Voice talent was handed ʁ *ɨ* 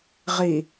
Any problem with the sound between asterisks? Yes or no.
yes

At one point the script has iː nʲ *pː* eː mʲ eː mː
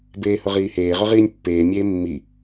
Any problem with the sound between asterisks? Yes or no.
no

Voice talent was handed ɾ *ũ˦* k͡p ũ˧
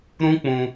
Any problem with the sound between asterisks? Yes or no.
no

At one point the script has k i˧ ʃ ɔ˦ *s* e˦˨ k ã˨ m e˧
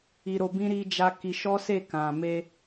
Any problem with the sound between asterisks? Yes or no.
no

